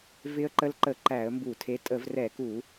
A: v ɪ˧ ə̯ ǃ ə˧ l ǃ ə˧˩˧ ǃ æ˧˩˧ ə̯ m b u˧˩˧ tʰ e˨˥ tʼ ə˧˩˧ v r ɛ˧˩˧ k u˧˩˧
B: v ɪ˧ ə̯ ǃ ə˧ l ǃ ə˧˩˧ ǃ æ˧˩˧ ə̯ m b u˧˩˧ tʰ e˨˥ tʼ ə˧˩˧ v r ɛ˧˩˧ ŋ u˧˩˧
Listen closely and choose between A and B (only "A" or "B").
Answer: A